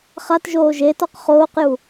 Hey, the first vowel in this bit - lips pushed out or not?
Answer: no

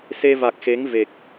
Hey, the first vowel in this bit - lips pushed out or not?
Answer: no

